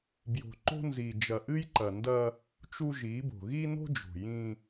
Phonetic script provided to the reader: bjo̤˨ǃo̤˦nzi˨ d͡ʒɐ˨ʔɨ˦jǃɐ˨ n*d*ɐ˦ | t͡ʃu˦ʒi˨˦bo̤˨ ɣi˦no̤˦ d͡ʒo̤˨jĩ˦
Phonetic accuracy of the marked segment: correct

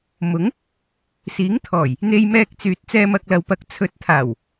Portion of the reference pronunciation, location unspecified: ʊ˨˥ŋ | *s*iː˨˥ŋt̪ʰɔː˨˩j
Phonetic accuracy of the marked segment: correct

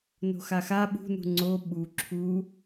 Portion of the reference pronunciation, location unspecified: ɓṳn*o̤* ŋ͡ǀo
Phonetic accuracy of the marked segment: incorrect: ṳ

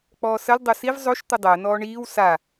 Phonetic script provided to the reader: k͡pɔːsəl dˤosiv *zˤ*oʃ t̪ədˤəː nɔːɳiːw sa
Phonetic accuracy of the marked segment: correct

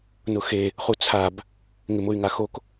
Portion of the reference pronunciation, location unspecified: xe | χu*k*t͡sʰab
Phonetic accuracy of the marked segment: incorrect: none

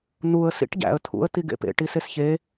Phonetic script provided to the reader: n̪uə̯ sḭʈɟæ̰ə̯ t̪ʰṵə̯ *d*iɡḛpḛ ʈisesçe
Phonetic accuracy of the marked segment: incorrect: t̪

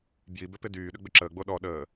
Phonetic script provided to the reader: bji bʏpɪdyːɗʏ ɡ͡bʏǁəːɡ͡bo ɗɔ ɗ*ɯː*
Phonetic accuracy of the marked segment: incorrect: əː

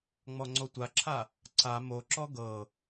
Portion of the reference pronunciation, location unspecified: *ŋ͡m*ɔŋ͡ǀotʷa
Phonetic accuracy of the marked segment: correct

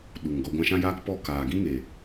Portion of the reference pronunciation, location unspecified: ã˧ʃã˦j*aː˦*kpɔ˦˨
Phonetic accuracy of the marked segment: correct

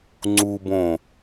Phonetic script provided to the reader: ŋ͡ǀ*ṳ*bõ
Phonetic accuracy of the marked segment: incorrect: u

